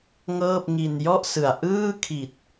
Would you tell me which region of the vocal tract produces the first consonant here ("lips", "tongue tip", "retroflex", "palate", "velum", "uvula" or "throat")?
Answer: velum